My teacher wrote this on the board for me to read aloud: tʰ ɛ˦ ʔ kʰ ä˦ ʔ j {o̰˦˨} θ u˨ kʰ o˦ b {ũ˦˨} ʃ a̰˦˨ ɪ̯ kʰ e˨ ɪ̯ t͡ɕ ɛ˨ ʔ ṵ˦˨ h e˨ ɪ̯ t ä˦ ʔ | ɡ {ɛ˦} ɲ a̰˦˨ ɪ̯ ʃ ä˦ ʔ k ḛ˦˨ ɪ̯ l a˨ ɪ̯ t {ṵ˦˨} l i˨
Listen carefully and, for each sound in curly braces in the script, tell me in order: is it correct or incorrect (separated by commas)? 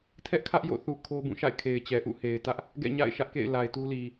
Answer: correct, correct, incorrect, incorrect